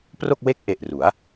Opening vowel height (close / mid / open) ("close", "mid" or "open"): mid